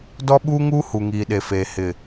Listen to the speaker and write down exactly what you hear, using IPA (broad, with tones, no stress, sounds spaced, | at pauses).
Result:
d ɔ˦ ɓ uː˦ ŋ uː˦ h u˨ ŋ iː˨ ɗ e˨ f eː˨ h ɪ˨